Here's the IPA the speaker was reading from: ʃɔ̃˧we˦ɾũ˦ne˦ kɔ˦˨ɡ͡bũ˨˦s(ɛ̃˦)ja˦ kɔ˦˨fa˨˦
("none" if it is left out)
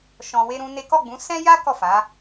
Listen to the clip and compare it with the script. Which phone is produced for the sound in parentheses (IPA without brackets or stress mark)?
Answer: ɛ̃˦